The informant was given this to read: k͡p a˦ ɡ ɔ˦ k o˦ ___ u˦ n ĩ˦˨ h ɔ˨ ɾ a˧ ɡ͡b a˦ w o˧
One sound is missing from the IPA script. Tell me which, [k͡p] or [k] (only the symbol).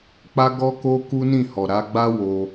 k